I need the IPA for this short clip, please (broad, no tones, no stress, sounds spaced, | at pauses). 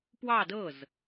p w ɑ d ɤ z